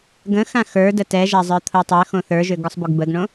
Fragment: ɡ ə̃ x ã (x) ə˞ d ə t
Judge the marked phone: correct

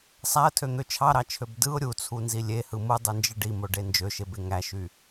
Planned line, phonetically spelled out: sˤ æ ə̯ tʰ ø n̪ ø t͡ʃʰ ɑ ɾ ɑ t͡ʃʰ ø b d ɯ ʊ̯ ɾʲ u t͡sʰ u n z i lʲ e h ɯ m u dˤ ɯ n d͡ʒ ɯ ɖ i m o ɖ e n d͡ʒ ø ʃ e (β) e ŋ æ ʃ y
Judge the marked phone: incorrect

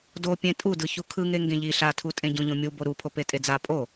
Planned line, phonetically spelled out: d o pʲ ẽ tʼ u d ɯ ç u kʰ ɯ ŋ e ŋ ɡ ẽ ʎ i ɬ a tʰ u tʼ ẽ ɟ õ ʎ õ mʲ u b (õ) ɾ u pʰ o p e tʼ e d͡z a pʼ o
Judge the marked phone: incorrect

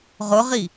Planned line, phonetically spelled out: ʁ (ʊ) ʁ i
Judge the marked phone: correct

